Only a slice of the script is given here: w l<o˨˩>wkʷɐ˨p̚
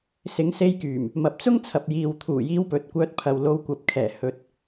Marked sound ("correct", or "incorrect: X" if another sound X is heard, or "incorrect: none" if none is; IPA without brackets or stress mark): incorrect: o˨˧